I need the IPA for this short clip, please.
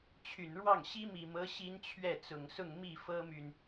t͡ɕʰy˨˩nɻwɑ˥˩ŋ ɕi˥mi˨˩mɤ˧˥ ɕi˥nt͡ɕʰɥɛ˥˩t͡sʊ˨˩ŋsʊ˥˧ŋ mi˥˩fɤ˥my˨n

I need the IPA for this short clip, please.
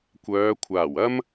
kʷœː˨˧kʷʰaː˨˩w ɐ˥m

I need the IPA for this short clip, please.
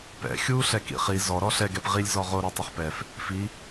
pɛ̰ xʲuːɬɛkḭχi zɔɾɔ ɬɛɡɛp ʁilʲ zɔʁo ɾotˤʊχpɛf | fi

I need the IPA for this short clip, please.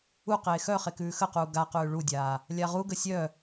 uqeː xœ χekʉːxəquː ɡaqʉː ɭudʲaː | lʲaʁuɡə sʲœ

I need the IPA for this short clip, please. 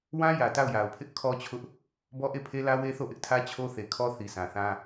wã˦jä˨ ta˦˨ʊ̯ja˨ʊ̯pʰɪ˦ʔ kʰɔ˦t͡ɕʰʊ˦ʔ | bɔ˦ʔe˦˨pʰe˦lä˦ we˦θo˦˨ʔɪ˦ʔtʰä˦ t͡ɕʰo˦θe˨kʰɔ˦ θi˨sã˨θã˦

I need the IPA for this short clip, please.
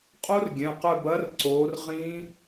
qʼo˦˥rɡʲɛ̃˩˧˩qœ˦˨b ɐ˦˥rǀo˨˦rʁĩ˦˥

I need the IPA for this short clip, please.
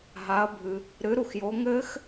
ɦa˨˦ɐ̯bʱɨ˨ | ɾɨ˨˦ɾu˨xjo˨˦ ŋɘ˦˥x

